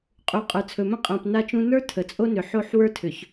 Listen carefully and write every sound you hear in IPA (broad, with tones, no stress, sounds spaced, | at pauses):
qʼ u˨ qʼ ə˞˨ t͡sʰ ɵ˨ m ə̃˦ qʼ ã˨ p n a˦ t͡ʃ ũ˦ n ə˞˦ tʰ ə˨ t͡sʼ o˦ n ʏ˨ ħ o˦˨ ħ w ə˞˦ tʰ ʏ˨ ç